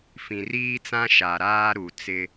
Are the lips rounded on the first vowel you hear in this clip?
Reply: no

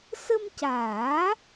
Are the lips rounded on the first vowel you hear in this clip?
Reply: no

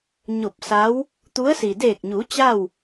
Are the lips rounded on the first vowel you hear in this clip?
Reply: yes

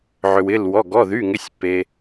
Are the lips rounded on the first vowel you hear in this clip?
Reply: yes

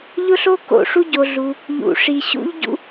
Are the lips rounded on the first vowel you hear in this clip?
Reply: yes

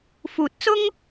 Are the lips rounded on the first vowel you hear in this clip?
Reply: yes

